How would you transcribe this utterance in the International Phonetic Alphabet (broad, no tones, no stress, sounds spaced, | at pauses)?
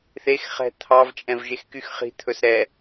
θ e x χ ɛ̤ t̪ʰ ɑ v t͡ʃʼ ɛ̃ v ʒ e x k y x χ i̤ t̪ʰ ɵ s ɾ ɛ